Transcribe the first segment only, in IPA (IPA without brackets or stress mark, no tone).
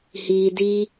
h